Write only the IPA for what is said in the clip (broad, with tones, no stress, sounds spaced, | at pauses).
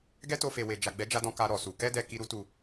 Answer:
ɡ ɛ˦ t o˧ f e˨ w e˨ d͡ʒ a˨ ɡ͡b ɛ˨˦ d͡ʒ a˧ d ɔ̃˧ k a˧ ɾ ɔ˨ s u˨ k ɛ˧ d ɛ˨ k i˨ ɾ u˧ t u˨